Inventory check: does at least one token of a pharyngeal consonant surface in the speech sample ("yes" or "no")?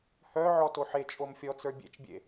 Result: yes